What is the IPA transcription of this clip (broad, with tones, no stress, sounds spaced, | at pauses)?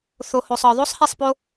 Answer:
θ o˨ h o˨ sˤ ɒ˨ ðˤ o˦ sˤ h e˦˨ sˤ p o˦